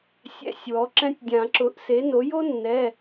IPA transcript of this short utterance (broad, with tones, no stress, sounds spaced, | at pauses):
sʲ ɛ̰˧˥˧ sʲ w ɔ˩˥ ǁ ɛ̃˥ tʲ dʲ ã˨˩˦ ǁ ʊ˩˥ ʔ s e˩˥ n o˩˥ j o˥ nː ɛ˩˧˩